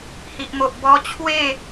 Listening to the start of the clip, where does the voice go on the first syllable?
low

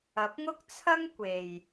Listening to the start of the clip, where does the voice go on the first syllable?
rising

